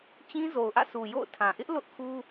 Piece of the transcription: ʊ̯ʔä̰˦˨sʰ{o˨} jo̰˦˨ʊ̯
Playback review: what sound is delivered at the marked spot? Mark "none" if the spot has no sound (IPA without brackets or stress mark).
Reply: u˨